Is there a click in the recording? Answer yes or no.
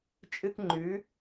yes